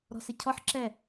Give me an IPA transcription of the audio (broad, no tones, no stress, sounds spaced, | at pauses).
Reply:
ɾ ɔ̤ s ɪ cʰ ɔ ħ ǁ ɛ